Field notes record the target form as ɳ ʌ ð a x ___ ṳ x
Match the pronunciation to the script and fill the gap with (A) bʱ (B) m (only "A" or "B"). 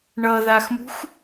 B